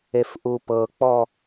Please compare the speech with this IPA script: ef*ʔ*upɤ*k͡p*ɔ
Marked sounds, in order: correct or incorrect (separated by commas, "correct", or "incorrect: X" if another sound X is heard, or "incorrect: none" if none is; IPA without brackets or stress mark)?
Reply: correct, correct